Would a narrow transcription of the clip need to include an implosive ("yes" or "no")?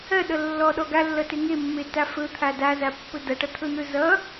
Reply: yes